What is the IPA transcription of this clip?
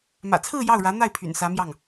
m ä̰˨˩ t͡sʰ ɹ̩˥˧ j ɑ˥˩ ʊ̯ ɻ ä˧˥ n̪ a˥˩ ɪ̯ pʰ y̰˨˩ n s ä˧˥ m j ɑ˥˩ ŋ

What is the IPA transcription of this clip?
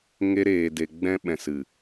ŋ e˦ ɾ eː˧ d e˧ ɡ͡b ɛ̃˧ ɓ ɛ̃˨ s ɨ˨

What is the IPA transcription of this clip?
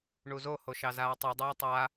ɳ u z o h o ʃ ɑ z aː tˤ u dˤ ɛː tˤ a

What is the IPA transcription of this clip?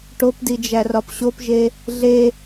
ʈ o p d i d͡ʒ æ r ɒ p ɕ o p ʒ e | ɮ e

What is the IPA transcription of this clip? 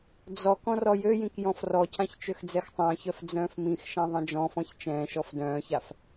d͡z ɔ k ɔ̃ r ɔ j ø j ĩ k j ɔ̃ f r ɔ cʰ ã ç t͡ʃ ø x d͡z ɛ x tˤ œ̃ː ç œ f d͡z œ̃ː f m ĩ x ʃ ã ðˤ ɛ̃ d͡ʒ ɔ̃ f ɔ̃ ç t͡ʃ ɛ̃ː ʃ ɔ f d œ̃ː ç a f

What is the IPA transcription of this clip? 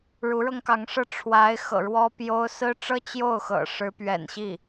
ɻ u˧˥ ɻ ɤ˧ ŋ k ɑ˧˥ ŋ ʂ ɤ˥˩ ʈ͡ʂʰ w a˧˥ ɪ̯ x ɤ̰˨˩ ɻ w ɔ˥ p j o˥ ʊ̯ s ɹ̩˥ ʈ͡ʂ ɤ˥ t͡ɕ j o˥˩ ʊ̯ x ɤ̰˨˩ ʂ ɻ̩˧˥ p ɥ ɛ̰˨˩ n ɕ i˥˩

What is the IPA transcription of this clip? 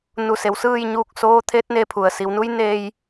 n u˧˩ s e˩˧ w s ɯː˥˨ j ɲ uː˧ k̚ s oː˧˥ t̪ʰ e˧˥ t̚ n e˧ pʰ u˩ ə̯ s i˩˧ w n u˧˥ j n eː˧ j

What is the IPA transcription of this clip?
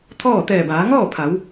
t̪ʰ ɔː˥˨ t̪ ɛː˧˩ b aː˩˧ ŋ ɔː˥˨ pʰ a˩˧ w

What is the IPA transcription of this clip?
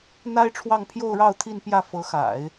n̪ a˥ ɪ̯ ʈ͡ʂʰ w ɑ˥˧ ŋ pʰ j o˥˧ ʊ̯ ɻ ɑ˥˧ ʊ̯ t̪ʰ i˥˧ n p j ä˥˩ f ɤ˧˥ x a̰˨˩˦ ɪ̯

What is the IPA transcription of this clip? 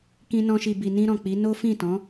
k ĩ˧ n ɔ̃˧ ʃ i˨ b i˨ n ĩ˧ ɾ ɔ̃˨ k͡p i˨˦ n o˦ f ĩ˦˨ t ɔ̃˨˦

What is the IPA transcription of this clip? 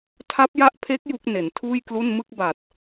tʰ a˦˥ p̚ j a˦˥ ʔ pʰ e˦˥ k̚ j u˦˥ k̚ n e˩˦ n tʰ uː˥˩ j k l u˥˩ n m ɯ˥˩ k̚ b a˨˩ t̚

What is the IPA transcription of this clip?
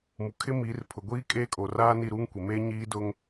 m u˨ kʰ ɪ˦ m i˨˦ r pʰ ʊ˨ ɡʷ iː˦ kʼ e˦ kʼ o˨ r aː˦ n i˦˨ ɾ uː˦ ŋ kʷ e˨ m eː˦ ɲ iː˦ d ʊ˦ ŋ

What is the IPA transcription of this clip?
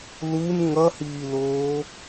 l u n ŋ ʌ h iː l oː

